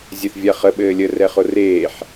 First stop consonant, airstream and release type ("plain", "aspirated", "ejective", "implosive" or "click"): implosive